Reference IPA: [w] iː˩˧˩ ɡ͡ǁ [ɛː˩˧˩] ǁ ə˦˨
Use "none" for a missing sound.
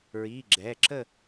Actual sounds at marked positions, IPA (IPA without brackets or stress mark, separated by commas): ɹ, ɛː˩˧˩